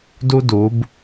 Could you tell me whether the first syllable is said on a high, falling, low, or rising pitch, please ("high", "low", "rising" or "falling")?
high